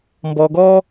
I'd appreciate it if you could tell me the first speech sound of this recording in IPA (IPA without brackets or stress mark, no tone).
m